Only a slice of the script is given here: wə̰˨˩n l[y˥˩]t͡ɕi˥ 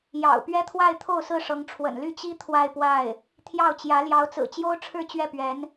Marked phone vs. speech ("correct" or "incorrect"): correct